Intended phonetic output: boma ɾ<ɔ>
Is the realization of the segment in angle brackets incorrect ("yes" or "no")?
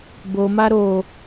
yes